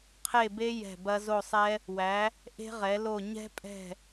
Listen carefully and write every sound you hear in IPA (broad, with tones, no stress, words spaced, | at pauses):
qʰe˦˨be˦˥ jɛ̤˦˨bɐ˦˥ zo˦˨sˤɛ˦˥ | wæ˨˦ | ʔe̤˦˥ʁɛ˨˦lo˦˨ ɲɛ̤˦˥pʼɛ̤˦˨